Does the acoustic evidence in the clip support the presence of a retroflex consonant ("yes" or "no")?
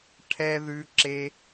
yes